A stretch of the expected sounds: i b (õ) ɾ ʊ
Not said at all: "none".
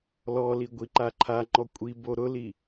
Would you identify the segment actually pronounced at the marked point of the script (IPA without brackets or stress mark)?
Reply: o